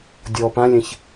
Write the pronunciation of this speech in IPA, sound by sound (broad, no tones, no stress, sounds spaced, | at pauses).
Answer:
dʲ ɔ p ã lʲ ɛ̃ ç